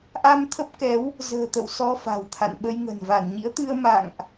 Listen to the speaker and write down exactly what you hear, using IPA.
ʔa˧m t̪ʰə˦˥p̚kɛ˨˦w | zə̤ː˨˩t̪ə̰˧˨w sɔ˧fa̤˨˩w t̪ʰa̰˧˨nɓə˧jŋə̤˨˩n va˧˩nɲḭ˧˥ə̯t̪ɨ˧ə̯ ma̰˧˨ŋʔ

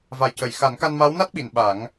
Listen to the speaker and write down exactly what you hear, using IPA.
va˨˩jcə˨˩˨j xa˨˩˦nka˧nma˧˥w na˦˥t̚ɓi˨˩˨n ɓa˨˩˦ŋ

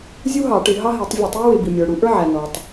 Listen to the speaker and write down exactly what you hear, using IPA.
zʲu˥ɦɑ˧˩˧ ʈɪ˧˩˧ɦɑ˥ɦi˧˩˧tˤ vʲɛ˧˩˧tˤjə˥ wɪ˧˩˧bi˩ mʲə˞˩ɽu˧˩˧ʔə˞˥ ʕæ˩ nɔ˩tˤ

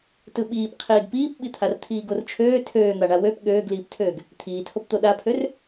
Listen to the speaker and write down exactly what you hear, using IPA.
tɯɓiːp qʰiːɡpiːpɓit̪ʰar t̪ʰiːɡort͡ʃʰøː tʰøːn̪aɳa wøp ɠøːɡliːptʰøːɡ | t̪ʰiːtʰopt̪o ɗapʰør

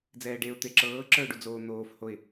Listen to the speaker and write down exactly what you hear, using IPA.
d͡zɛːɖeʊ̯ t̪eǁɤː ǁə˞ʊ̯ɖud͡zoː n̪oːf hoɪ̯

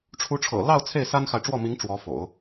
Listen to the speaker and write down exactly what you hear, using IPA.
ʈ͡ʂʰu˧˥ʈ͡ʂʰɤ̰˨˩ lɑ˥˧ʊ̯ t͡sʰe˥˩ɪ̯sa˥nxa˨ɪ̯ʈ͡ʂwɔ˥˩ mi˧˥ŋ ʈ͡ʂwɔ˧˥ fo̰˨˩˦ʊ̯

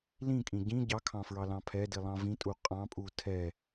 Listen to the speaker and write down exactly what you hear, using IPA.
lĩkʼĩ ɟĩ ɟɑkʰɑ̃fɹɑlɑ̃ pʰɛdilˠɑ̃ vĩtʼu qʼɑ̃pʼu tʰɛ

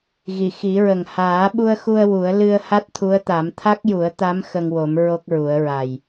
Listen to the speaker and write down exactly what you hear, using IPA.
ɣi˨˩˨xi˨˩˦ɹə˨˩ŋ haː˨˩˦ɓu˧ə̯xu˧ə̯ wu˨˩˦ə̯ lɨ˧ə̯ ha˦˥t̚t̪ʰu˧˥ə̯t̪a˨˩˦m t̪ʰa˦˥k̚ju˨˩˦ə̯t̪a˧˥m xə˧ŋwo˨˩˦m ɹo˦˥k̚ɹu˨˩˦ə̯ɹa˨˩j

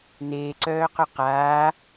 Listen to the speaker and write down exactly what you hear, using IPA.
neːǀœːqœ qaː

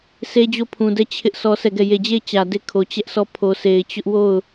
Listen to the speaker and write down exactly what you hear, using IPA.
sʰe˦d͡ʑo˦˨pʰũ˨dɛ˦˨ t͡ɕʰɪ˦ʔ sɔ˦sʰɛ˦˨ɡɛ˦˨ je˨d͡ʑe˦˨ɪ̯ t͡ɕä˨de˦˨kʰo˨ t͡ɕɛ˦ʔsɔ˦˨ pʰo˨sʰe˨ɪ̯t͡ɕʊ˦ʔwo˦˨ʊ̯

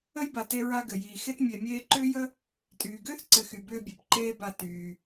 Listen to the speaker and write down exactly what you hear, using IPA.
ə˥jba˨te˦ ɹa˦ɡɘ˨jiː˨ xe˦tmʲe˨ mʲeː˦ǃʏː˥jə˥ | tʼyː˨ɡʏː˥θǀɘ˨ xy˨bʏː˦bʲe˩pǃeː˦ ba˨ tyː˩

